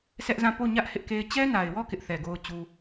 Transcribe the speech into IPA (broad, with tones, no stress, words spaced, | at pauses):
sɛ˦ʔzã˦˨ po˦˨ ɲä˦ʔ hɪ˦ʔke˦ɪ̯ t͡ɕɛ˦na˨ɪ̯wɔ˦˨ kɪ˦ʔθɛ˨ɡo˦ʊ̯ t͡ɕu˦